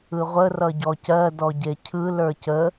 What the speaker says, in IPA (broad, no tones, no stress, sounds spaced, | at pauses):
ɯ ʁʷ ə r ʌ ɟ ɔ c ɜ d ɔ ɟ e cʰ ɯ l ə˞ c ə